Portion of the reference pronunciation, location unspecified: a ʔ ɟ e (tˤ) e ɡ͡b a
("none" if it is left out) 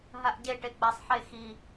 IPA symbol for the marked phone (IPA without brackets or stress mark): ʈ